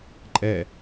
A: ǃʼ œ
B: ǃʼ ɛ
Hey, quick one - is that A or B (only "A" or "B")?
B